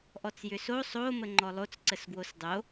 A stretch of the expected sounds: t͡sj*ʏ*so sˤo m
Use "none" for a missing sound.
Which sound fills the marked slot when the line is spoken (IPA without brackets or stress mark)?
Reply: ʏ